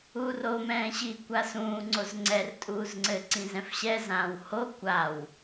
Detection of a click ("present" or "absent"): present